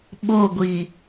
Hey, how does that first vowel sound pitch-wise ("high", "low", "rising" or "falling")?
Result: falling